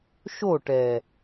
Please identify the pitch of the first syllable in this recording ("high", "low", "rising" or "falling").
falling